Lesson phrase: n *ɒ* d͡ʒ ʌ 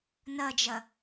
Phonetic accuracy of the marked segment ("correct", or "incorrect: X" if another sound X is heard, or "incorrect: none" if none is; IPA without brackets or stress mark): incorrect: ʌ